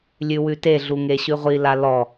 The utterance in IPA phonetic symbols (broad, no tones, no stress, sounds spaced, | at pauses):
lʲ ʉ w ʉ t e ɮ u ŋ e ɕ ʉ ʁʷ i l a l ɔ